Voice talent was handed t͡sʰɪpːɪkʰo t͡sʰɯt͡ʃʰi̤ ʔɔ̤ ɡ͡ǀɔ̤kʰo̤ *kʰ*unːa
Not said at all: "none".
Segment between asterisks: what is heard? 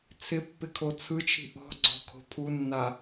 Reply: pʰ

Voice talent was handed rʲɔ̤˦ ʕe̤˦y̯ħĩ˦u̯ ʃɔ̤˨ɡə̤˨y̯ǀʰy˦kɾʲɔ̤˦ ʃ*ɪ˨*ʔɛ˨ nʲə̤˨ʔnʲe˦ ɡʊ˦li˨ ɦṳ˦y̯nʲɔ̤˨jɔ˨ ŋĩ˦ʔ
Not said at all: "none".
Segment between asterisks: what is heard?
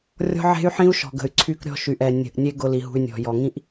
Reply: y˨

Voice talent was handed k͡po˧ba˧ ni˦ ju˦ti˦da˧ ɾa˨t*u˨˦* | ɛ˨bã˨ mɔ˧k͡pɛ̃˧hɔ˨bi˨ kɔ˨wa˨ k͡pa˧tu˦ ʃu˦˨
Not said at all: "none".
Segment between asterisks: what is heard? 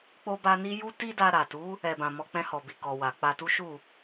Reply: u˨˦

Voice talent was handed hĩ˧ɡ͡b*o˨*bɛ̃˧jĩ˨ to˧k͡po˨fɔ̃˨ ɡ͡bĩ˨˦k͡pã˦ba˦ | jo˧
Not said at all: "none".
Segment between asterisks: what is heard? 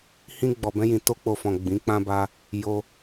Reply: ɔ˨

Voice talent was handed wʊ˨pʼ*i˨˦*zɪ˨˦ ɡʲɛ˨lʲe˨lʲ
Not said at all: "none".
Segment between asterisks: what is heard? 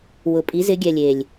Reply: i˨˦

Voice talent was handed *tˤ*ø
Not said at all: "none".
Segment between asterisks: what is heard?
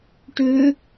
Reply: ʈ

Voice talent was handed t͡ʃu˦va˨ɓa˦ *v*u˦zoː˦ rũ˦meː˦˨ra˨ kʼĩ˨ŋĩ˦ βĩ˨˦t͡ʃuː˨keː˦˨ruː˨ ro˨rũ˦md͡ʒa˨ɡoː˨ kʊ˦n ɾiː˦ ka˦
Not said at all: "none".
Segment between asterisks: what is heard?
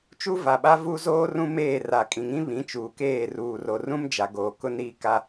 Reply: v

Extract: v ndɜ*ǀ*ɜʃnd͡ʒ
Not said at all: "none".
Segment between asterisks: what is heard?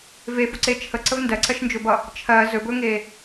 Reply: ǀ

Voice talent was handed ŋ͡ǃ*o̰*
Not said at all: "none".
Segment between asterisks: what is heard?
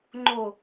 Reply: o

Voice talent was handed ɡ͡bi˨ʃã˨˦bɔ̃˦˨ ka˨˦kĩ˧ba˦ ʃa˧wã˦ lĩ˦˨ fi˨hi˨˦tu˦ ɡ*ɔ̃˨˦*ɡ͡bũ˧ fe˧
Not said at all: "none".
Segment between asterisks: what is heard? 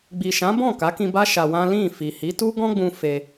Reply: ɔ̃˦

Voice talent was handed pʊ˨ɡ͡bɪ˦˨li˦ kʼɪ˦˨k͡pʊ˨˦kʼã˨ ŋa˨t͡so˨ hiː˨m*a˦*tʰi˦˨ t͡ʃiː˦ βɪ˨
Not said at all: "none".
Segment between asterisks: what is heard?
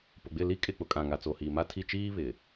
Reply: a˦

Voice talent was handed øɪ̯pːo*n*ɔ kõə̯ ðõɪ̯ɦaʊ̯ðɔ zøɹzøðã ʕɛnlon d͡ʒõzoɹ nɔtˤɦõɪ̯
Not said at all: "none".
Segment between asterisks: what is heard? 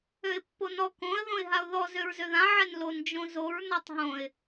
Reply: n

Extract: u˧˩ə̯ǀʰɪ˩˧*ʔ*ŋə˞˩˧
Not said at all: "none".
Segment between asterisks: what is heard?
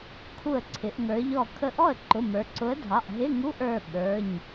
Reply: ʔ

